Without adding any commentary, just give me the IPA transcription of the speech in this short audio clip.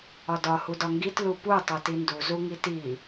ɒdɒ hudɒŋɡit lupu tˤotindu zuŋiti

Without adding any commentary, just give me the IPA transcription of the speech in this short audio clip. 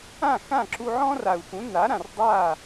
ã˥˩xã˥˩ ǁu˧ ʕɔ̃˥ra˩u̯xũ˩˥ na˩˥ɾã˩r dˤa˥˩

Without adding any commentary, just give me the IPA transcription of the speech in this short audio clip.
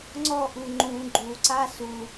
ŋ͡ǀɔʔu ŋ͡ǃũ ɡ͡ǃuǀa su

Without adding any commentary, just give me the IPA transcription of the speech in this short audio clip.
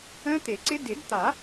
ə̃ː˦˥t̪e˨˩˦ǀɪ˦˥ dɪ˨˩˦dt̪a˨˩˦

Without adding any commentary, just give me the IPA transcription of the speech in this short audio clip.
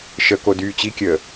ʃə kodyːt͡ɕikʲəː

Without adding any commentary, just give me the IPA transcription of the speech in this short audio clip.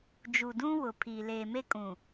d͡ʒu˨dũ˦ wʊ˨pʰi˨ leː˨me˦ kʼũ˨

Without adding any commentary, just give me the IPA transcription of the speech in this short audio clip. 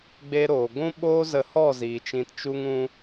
ɡ͡beː˦ɾoː˨ ɡʷũ˦ɓoː˦zə˧hɔ˦˨ ziː˨t͡ʃĩ˧tt͡ʃu˦ŋ ũ˦

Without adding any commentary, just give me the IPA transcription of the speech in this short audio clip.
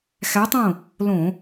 xæ˧˥tˤõ˥˨ | lõ˧˩˧

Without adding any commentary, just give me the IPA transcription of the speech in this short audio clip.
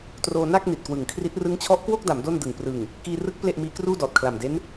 troː˧ na˥˩k̚ ni˨˩t̚kwɯ˨˩ŋkʰri˦˥t̚ rɯ˦˥ŋt͡ɕʰɔ˦˥ʔkwo˥˩k̚da˩˦m do˥˩ndɯ˨˩ŋ prɯ˨˩ŋ | kiː˧rɯ˦˥k̚ ple˥˩ʔmiː˦˥ kruː˥˩dɔː˨˩t̚kʰla˨˩mde˦˥n

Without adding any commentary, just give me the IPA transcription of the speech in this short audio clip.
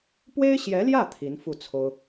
pwe˥ɪ̯ɕjɛ˧˥ljä˥˩ t̪ʰi˧˥nfu˥˩t͡sʰo˥ʊ̯

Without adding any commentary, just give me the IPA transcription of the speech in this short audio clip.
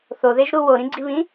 θoðeʒɾu woɾĩɡ͡ǀiβĩ

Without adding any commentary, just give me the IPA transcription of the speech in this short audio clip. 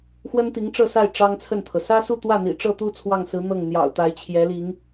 xwə˥nt̪i˧˥ŋ ʈ͡ʂɤ˥˧sa˥˩ɪ̯ ʈ͡ʂɑ˥ŋt͡sʰə˥˩nt̪ʰɤ˩ sä˥su˥˧t̪wä˥˩n̪ḭ˨˩ ʈ͡ʂɤ˥˧t̪u˥˧ t͡sʰwɑ˥˩ŋsɹ̩˧˥ n̪ɤ˥˩ŋn̪jɑ̰˨˩ʊ̯ t̪a˧˥ɪ̯t͡ɕʰjɛ˧˥li˧˥ŋ

